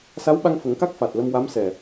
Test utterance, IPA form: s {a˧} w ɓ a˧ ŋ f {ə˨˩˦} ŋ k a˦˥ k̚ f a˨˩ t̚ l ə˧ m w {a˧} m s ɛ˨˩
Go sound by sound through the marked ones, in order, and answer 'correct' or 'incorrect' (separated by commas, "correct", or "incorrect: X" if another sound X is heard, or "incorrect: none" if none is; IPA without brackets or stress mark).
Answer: incorrect: a˧˥, correct, incorrect: a˧˥